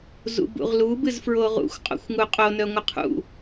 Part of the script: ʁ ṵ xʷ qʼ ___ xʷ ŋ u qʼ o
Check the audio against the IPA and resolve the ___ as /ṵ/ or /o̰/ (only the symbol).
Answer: o̰